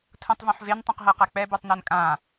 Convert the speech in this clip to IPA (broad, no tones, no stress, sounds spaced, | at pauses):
tʰ ũ tˤ v ũ ħ v e n tˤ ũ q ɦ ɤ q a k͡p ɛ b u tˤ n u n kʼ ã